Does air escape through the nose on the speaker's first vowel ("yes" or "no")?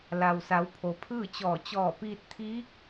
no